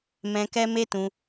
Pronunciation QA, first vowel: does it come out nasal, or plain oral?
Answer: nasal